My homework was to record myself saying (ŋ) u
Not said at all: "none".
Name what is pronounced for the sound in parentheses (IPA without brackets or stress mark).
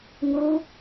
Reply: ŋ